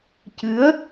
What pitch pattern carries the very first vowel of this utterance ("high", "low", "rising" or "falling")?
rising